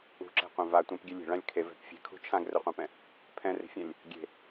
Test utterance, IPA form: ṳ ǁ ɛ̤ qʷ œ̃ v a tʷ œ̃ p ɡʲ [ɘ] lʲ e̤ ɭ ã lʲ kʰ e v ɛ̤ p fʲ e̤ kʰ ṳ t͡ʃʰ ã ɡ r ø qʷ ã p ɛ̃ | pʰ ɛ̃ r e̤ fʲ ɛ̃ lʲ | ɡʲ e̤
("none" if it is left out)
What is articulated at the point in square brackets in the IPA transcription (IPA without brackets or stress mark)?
ɛ